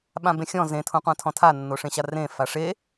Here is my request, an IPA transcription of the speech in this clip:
ɓ ã b ẽ xʲ ɔ̃ z ẽ tʰ õ qʷ ã tʰ ɔ̃ tʰ a nː o ʂ ẽ ɕ a r ẽ f a ʂ e

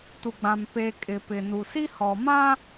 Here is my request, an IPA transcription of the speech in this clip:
t u˨ ɡ͡b ã˨ m p eː˨ kʼ ɪ˨ p ɪ˨ n u˨ s i˦ h ɔ˨ m ã˦

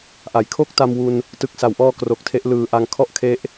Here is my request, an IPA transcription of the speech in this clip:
ʔ a˩˦ j kʰ o˥˩ k̚ t a˧ m w u˧ n | t ɯ˨˩ k̚ s a˩˦ w ʔ ɔː˧ k r o˨˩ k̚ tʰ e˦˥ ʔ l ɯː˨˩ ʔ a˧ ŋ kʰ ɔ˥˩ ʔ kʰ e˦˥ ʔ

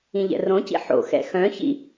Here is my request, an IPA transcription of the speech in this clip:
ĩ ʎ ɛ̰ r õ c ḭ ħ o̰ x ɛ̰ x œ̃ ç ḭ

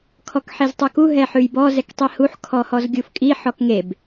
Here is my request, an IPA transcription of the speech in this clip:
kʰ ɔ k ħ e z tˤ u k u ɦ ɛ ħ ʉ j b ɔ z ɛ k tˤ i h u ħ kʰ ɔ h ɔ z ɡʲ u f kʼ i ħ ɔ k ŋ e b

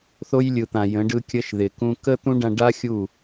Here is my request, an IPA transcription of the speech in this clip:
θ o˧ j lʲ ɯ˨ t̪ ã˨ j ə̃˨˦ ɖ ɯ˧ kʲ ə˧ ʃ ð ɪ˨ k ũ˧ k ə˦ t̪ ũ˦ ɖ ã˧ ɖ a˦ xʲ u˦˨

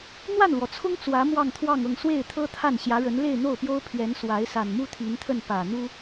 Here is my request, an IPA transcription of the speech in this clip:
n̪ w a˥˩ n l w ɔ˩ t͡sʰ ʊ˥ ŋ t͡s w ä˧˥ m w ɑ˥˧ ŋ t̪ʰ w ɑ˥˧ ŋ ɤ˥˧ ŋ s w e˥˩ ɪ̯ t̪ʰ ɤ˥ t̪ʰ a˥˩ n ɕ j ä˧˥ ɻ ə˧˥ n l e˥˧ ɪ̯ n̪ o˥˩ ʊ̯ p j o˥ ʊ̯ pʰ ɥ ɛ˧˥ n s w a˧˥ ɪ̯ s a˨˩ n m u˥ t̪ʰ i˧˥ n t̪ʰ ə˥˩ n p ä˨˩ n̪ u˥

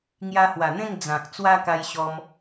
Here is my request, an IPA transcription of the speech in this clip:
ŋ j a˧ h w a˨˩ n̪ ẽ˥˧ ŋ d͡z ã˨ k̚ t͡s w a˦ k a˧ j ɕ ɔ˧ m

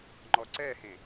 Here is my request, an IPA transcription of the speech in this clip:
ŋ͡ǃ ɔ ǀ ɛ h ẽ

